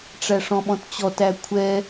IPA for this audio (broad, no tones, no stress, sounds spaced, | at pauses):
ʈ͡ʂ æ ʂ ɔ̃ ɓ ɔ̃ t t͡ɕ ɔ t æ kʷʰ ɛ